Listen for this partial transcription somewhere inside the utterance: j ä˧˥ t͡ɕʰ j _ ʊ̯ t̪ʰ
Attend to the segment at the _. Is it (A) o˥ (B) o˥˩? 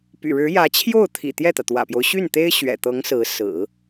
B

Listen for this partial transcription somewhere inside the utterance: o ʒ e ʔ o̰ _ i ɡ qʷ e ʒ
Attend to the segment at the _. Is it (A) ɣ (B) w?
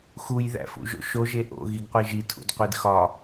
A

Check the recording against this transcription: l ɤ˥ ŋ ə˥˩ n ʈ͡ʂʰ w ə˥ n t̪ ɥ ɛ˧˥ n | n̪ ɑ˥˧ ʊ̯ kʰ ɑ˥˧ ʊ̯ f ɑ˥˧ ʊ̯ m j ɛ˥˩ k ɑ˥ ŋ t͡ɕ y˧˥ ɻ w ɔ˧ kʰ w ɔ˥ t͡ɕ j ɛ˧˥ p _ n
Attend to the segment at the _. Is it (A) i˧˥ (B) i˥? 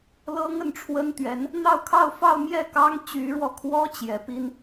B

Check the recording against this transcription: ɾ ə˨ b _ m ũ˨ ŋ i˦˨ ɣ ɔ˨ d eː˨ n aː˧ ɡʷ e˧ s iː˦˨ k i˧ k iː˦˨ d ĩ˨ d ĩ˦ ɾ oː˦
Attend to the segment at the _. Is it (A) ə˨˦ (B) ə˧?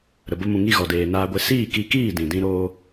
B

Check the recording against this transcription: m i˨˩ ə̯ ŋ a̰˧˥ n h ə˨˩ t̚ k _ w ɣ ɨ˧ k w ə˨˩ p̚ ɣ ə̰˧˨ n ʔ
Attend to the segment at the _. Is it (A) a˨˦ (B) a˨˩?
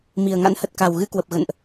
B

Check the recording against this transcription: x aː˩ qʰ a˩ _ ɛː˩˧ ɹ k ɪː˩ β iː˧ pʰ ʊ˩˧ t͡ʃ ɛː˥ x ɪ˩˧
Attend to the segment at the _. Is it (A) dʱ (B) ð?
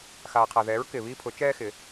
B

